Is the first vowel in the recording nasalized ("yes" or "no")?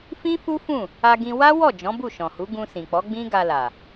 yes